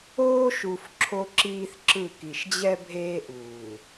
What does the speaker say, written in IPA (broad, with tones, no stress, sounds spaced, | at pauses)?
oː˦ ʃ u˨ f ǁʰ o˦ ǁ iː˦ θ ǁ ɯ˦˨ k i˨ ʃ d͡ʑ ɛ˦ bʱ eː˦ ʔ uː˨